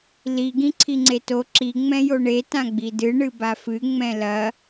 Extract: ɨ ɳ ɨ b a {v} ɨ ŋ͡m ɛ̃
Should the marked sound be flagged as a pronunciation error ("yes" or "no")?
yes